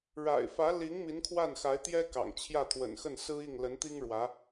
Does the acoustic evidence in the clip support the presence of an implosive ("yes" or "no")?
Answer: no